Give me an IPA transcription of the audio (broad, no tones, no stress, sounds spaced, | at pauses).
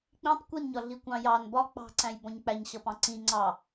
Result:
k͡p ĩ tˤ kʷ i n ɲ ɒ ɮ i kʷ ɑ̃ j ɑ n b ɒ k͡p ɑ̤ ǀ æ̃ j b ɔ̃ ɲ k͡p æ ɲ ɕ ʌ p ɑ̃ ǀ ĩ ŋ͡ǀ ɑ